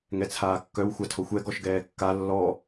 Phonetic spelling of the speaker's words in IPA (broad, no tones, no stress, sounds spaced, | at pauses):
ŋ ɛ t͡sʰ aː kː œ w xʷ a tʰ o xʷ ɛ ɡ ɔ ʃ ɡ ɛː kː a lː ɔ